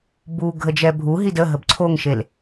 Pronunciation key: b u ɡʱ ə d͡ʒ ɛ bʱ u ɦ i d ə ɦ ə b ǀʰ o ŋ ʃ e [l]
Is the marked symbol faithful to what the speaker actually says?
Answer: yes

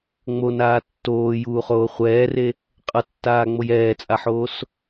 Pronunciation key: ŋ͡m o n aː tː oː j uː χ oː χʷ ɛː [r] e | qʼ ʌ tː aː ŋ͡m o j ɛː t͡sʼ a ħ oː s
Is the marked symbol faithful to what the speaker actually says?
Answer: yes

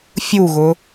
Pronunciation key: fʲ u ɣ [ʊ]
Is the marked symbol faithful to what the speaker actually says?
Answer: yes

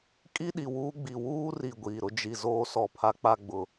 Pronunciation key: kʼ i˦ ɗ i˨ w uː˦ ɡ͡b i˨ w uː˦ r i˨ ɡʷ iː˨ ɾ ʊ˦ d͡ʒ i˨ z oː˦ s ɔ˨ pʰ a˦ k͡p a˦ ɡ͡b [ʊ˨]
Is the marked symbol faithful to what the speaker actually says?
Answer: yes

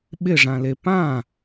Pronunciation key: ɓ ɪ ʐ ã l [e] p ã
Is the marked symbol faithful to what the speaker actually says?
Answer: yes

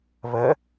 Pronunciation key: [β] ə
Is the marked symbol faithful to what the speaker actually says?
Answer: yes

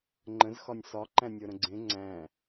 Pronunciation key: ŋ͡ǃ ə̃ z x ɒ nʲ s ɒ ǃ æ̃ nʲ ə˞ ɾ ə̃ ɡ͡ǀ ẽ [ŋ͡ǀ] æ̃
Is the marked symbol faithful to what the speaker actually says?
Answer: yes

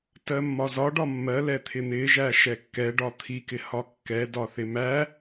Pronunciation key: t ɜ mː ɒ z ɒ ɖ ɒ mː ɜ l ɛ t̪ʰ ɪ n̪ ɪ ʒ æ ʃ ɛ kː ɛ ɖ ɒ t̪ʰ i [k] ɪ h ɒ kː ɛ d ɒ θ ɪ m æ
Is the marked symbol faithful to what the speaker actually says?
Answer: yes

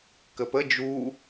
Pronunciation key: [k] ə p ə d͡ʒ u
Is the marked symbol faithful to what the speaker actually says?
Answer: yes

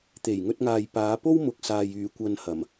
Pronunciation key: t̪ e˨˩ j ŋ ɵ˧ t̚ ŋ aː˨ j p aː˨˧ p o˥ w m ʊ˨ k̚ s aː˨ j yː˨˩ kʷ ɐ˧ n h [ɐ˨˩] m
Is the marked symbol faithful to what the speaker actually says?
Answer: yes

